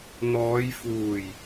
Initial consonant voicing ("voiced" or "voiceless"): voiced